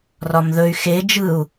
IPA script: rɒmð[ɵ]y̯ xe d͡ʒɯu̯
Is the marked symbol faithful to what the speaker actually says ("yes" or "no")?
yes